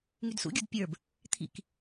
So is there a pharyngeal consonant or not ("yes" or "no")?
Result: no